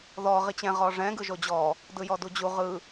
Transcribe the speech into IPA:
ð ɔ ʁ i t͡ɕ ɛ̃ ʁ ɔ ʐ ɛ̃ ɡ ɯ ʒ o d͡ʑ ɔ | d ɯ j ɔ d u d͡ʑ u ʁ ɯ

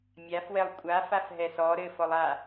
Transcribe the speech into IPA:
mʲ a f w ɛ lˠ kʷʼ a f a f ɦ ɛ s ɔ ɾ ɘ f ɔ lˠ a

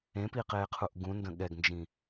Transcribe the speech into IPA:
ẽ p i q eː qʰ u ʔ ɡ ũ n d ə̃ ɠ ɛ ɡ n d͡ʒ ĩ

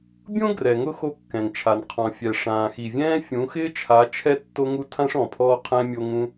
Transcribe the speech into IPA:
bʲ õ˦ ɡ r ɛ˨ ŋ ʊ˦ x o˦ kː ɛ̃˨ ŋ t͡ʃʰ a˨ n qʰ ɔ̃˨ fʲ ɛ˨ ʂ ãː˨ x i˨ vʲ ɛ̃ː˦ fʲ ũ˨˦ x ɪː˦ t͡ʃʰ a˨˦ t͡ʃʰ ɛ˦ tː o˦ ŋ u˦ tʰ ã˦ ʂ ɔ̃˨ pʰ ɔː˦ qʰ ɛ̃˦ mʲ o˦ ŋ ũ˦

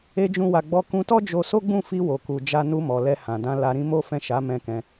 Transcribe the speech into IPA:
e˦ d͡ʒ ũ˦ w a˧ ɡ͡b ɔ˦ k ũ˧ t ɔ˦ d͡ʒ o˧ s o˦ ɡ͡b ũ˦˨ f i˧ w o˨ k u˨ d͡ʒ a˧ n u˧ m ɔ˨ l ɛ˧ h ã˨ d ã˧ l a˧ ɾ ĩ˦ m o˦ f ɛ̃˦˨ ʃ a˨˦ m ɛ̃˧ k ɛ̃˧

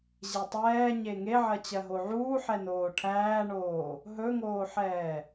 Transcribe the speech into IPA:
ʑ e tˤ ɛː ɲ e ŋ e ʕ ɜ t͡ɕ ɜ ɦ o ʕ uː ħ ɛ n oː ʈʰ æː ɳ oː | ɦ ɵ ŋ oː ħ ɛː

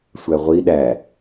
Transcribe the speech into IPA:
sʷ æ ʁʷ i ɗ æ

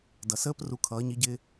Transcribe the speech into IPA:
d ʌ˨ s əː˦ p r u˧ kʰ ʌː˨˦ ɲ i˨˦ ɟ ɪː˧

